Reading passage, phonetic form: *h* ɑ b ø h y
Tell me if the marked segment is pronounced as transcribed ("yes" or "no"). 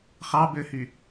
no